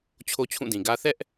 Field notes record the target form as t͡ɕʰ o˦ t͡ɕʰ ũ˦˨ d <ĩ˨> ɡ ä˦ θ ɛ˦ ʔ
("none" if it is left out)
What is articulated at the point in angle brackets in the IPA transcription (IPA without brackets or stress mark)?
ĩ˨